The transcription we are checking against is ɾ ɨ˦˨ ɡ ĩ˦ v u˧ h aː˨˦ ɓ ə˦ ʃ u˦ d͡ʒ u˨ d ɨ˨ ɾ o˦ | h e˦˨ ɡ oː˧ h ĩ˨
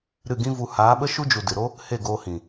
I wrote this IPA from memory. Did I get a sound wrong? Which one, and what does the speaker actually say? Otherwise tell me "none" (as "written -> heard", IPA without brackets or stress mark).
none